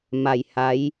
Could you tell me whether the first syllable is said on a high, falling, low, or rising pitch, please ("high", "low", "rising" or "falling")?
low